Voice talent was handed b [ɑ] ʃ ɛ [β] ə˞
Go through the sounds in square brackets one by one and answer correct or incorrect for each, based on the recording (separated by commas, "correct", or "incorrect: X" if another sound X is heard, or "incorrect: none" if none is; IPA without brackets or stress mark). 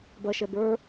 incorrect: ɐ, incorrect: b